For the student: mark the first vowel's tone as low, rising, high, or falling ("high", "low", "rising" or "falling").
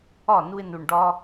falling